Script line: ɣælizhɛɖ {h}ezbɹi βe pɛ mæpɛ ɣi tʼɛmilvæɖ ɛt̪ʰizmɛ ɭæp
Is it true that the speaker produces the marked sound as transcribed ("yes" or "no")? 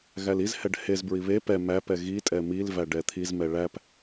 yes